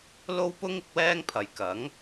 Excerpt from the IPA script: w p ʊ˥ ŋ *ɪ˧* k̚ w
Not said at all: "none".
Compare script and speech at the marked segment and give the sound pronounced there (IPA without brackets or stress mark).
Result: ɪ˨˥